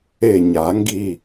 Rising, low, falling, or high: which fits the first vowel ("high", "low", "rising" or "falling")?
falling